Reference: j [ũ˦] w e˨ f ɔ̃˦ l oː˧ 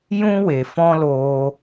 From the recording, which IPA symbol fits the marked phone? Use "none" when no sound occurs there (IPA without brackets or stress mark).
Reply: ũ˦